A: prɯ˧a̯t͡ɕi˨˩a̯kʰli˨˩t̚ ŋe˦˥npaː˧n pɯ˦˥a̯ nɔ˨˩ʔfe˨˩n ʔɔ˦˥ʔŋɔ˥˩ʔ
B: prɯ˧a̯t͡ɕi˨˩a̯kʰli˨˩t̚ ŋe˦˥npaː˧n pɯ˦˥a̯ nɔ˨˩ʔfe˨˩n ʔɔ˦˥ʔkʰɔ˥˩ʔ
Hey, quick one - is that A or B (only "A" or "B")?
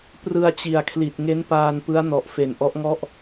A